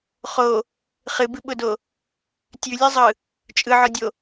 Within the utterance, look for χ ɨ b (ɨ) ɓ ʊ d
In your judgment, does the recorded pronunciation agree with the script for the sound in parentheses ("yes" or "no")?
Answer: yes